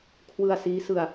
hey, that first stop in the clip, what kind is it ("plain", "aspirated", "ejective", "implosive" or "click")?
aspirated